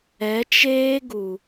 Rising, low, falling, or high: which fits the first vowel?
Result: rising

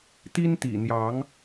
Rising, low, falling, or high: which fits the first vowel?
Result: high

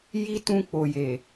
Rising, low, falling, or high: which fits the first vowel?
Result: high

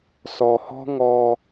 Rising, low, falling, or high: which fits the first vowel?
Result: low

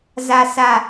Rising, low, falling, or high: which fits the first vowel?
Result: high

